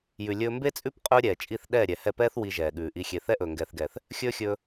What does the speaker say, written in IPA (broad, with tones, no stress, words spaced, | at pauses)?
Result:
jʉ˨lʲɵː˧mbe˦t͡sʼʉ˦p qʼɵː˦ɾʲɛː˨t͡ʃʼi˦˨θ ɗɛː˦˨ɾʲɛ˨hɛ˦˨pɛː˦θ wi˨ ʒɛː˨ɠʉː˨ʔi˧xʲe˧ θɛ˦ʔɵː˨ŋɡɛː˨θɡɛː˨θ | xʲɵː˦xʲɵː˧